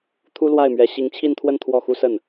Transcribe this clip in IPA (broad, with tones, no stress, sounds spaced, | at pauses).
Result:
t̪ʰ u˥ l w a˥˩ ɪ̯ m ɥ ɛ˧˥ ɕ i˧˥ ŋ t͡ɕʰ i˥˧ n t̪ʰ w ə˥˧ n t̪ʰ w ɔ˥˩ x u˥ s ə˥˩ n